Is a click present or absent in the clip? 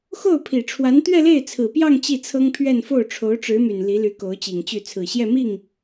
absent